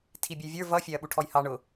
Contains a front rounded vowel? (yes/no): no